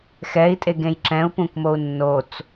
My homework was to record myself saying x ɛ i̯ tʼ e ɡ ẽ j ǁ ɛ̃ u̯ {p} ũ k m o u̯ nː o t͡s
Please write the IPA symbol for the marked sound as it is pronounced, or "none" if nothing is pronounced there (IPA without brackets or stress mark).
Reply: p